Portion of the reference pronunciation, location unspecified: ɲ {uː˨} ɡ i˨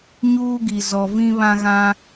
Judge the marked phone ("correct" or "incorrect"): incorrect